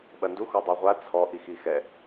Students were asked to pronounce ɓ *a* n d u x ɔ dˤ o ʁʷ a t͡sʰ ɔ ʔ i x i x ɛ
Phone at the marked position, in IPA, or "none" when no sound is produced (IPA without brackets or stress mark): ɐ